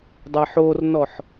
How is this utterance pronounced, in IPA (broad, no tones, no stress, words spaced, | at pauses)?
dˤɛħornɔħ